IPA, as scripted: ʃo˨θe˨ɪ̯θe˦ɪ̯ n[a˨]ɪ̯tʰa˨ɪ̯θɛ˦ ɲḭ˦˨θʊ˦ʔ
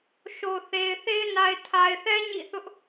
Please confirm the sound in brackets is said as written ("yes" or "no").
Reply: yes